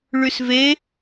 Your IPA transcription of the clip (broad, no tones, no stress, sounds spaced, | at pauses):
ɭ y s v e